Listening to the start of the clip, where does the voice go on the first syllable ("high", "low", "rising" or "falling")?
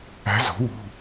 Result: rising